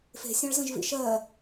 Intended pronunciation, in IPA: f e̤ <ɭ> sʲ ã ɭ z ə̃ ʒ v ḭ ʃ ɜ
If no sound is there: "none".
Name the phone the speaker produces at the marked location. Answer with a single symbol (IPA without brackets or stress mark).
none